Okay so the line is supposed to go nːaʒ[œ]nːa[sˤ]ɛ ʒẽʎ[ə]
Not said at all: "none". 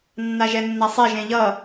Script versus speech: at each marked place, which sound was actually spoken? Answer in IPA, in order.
ɛ, sˤ, ʌ

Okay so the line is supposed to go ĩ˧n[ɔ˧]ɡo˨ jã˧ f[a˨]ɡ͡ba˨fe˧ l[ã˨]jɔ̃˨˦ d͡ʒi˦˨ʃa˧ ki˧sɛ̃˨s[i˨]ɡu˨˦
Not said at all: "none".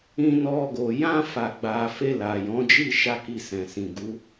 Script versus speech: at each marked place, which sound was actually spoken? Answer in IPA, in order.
ɔ˧, a˨, a˨, ĩ˨

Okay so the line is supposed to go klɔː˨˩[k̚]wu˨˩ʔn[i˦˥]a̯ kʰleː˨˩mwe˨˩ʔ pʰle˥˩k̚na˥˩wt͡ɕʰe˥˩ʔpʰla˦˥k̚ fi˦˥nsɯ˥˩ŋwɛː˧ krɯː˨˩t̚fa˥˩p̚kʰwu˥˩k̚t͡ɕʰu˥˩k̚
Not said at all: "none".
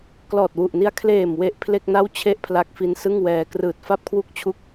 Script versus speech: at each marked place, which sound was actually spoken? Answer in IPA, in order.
t̚, i˦˥

